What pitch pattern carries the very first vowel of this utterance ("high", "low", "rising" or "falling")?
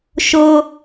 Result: high